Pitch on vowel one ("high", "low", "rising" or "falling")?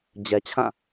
low